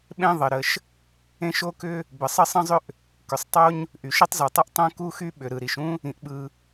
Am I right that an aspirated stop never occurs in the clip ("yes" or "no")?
yes